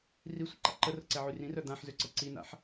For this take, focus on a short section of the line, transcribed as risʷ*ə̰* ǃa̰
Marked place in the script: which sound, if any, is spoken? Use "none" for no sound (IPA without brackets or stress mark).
ə̰